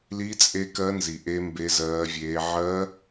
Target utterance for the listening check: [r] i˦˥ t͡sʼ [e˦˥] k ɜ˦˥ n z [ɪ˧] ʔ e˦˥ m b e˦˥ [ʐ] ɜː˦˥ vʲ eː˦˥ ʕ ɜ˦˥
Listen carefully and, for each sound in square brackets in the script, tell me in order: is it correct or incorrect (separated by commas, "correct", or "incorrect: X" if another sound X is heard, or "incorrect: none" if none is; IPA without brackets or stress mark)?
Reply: incorrect: l, correct, incorrect: i˧, incorrect: z